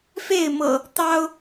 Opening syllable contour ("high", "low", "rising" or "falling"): falling